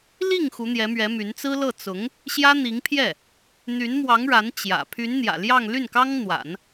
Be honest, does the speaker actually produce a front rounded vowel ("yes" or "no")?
yes